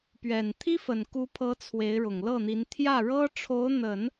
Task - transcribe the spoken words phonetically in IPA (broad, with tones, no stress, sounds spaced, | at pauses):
p ɥ ɛ˨˩ n t̪ʰ i˥ f ə˨˩ n k u˧˥ pʰ ɤ˧˥ t͡sʰ w e˧˥ ɪ̯ ɻ ʊ˨˩ ŋ l ɤ˥˩ n̪ i˧˥ n t̪ʰ j ä˥˩ ɻ ɤ˥ ʈ͡ʂʰ o˧˥ ʊ̯ n̪ ə˨˩˦ n